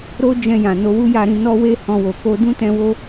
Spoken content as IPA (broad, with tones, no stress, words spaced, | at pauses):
ɾo˦d͡ʒɛ̃˧jã˨ no˧wu˦ja˧ɾĩ˧ nɔ˦we˦hɔ̃˧wo˨ ko˧ dũ˦tɛ̃˧ wo˦